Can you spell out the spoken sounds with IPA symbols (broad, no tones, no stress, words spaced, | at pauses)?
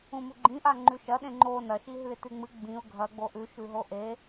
ũmuɡ͡ǃĩʔa ŋ͡ǃʉʃɐɗẽ ŋ͡ǃo nɐʃiɦʉɪ̯ tʉŋ͡mɨ ɡ͡bĩʊ̯ ɡʱɐ ɡ͡boʔʉ ʃʉɦoʔe